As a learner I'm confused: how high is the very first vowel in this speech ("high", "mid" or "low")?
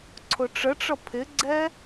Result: high